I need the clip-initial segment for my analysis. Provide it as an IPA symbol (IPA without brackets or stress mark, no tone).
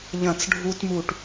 ʎ